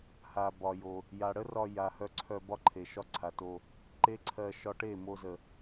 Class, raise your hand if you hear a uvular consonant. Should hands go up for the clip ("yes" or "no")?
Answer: no